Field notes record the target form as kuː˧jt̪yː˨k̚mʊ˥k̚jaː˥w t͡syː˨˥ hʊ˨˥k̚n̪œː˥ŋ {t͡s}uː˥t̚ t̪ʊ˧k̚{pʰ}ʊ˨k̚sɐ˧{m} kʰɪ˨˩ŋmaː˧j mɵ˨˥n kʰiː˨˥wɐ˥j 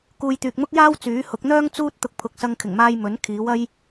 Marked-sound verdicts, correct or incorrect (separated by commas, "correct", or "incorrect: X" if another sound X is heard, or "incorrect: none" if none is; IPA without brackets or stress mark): correct, correct, incorrect: ŋ